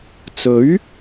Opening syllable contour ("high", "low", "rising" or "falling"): rising